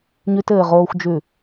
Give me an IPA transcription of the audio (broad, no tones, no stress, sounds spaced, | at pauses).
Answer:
ɲ ʉ t ɘː ʁ oː xʷ d͡ʒ ʉ